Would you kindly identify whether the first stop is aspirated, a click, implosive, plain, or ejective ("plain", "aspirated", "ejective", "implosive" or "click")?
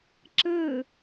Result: click